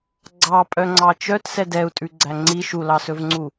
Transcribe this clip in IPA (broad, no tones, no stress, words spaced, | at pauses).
ɡ͡ǀɑpʼœŋ͡ǀɑ t͡ʃœtsɛ dɛu̯tʼʉɡ͡ǀæ ŋ͡ǀi ʃulɑsɵvŋ͡ǀu